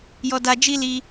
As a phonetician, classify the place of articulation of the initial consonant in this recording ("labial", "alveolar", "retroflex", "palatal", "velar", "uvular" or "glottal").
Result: palatal